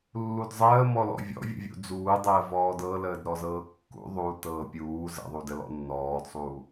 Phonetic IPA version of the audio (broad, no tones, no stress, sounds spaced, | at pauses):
lː u d zˤ əː m ɔ l ɔ̰ vʲ ɔ̰ vʲ ə̰ vʲ ṵ d͡z uː dˤ əː v ɔː d ɤ l əː d ɾ ɔ z ɤː kː ṵ ðˤ u t ɤː pʲ uː z ə̰ ðˤ u d ə l ɔ̰ nː ɔː d sˤ uː